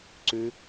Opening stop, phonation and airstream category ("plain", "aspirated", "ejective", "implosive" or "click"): click